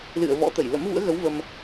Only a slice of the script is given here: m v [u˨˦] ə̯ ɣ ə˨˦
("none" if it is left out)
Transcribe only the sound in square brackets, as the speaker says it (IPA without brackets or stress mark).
ṵ˧˥